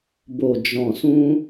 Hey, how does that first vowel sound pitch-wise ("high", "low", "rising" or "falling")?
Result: low